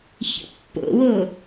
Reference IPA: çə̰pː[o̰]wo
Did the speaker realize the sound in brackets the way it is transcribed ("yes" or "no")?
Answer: yes